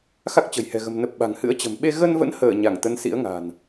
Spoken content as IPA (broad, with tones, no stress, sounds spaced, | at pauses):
x a˦˥ k̚ t͡ɕ ə̤˨˩ j h ɛ̤˨˩ ɣ ə̤˨˩ m n ə˨˩ p̚ ɓ a̤˨˩ ŋ h ɨ̰˧˥ ə̯ t͡ɕ ə̤˨˩ m ɓ e˧ ɣ ə˧ n v ə̰˧˥ n h əː˧˩ ɲ a˧˩ ŋ t̪ ə˨˦ n s ḭ˧˥ ə̯ ŋ a̤˨˩ n